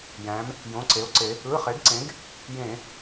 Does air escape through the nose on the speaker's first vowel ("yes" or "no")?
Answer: yes